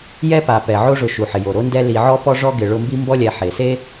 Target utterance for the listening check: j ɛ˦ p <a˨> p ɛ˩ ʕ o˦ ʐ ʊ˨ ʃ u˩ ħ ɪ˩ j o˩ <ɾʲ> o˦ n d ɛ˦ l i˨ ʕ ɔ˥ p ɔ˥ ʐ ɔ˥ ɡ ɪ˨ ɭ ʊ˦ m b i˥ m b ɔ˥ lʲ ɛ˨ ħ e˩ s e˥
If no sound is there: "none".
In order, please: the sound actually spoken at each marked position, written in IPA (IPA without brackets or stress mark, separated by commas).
a˩, ɾ